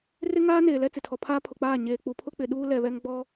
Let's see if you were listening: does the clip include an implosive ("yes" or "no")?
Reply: yes